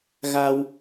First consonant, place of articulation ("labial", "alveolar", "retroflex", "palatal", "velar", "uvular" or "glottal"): velar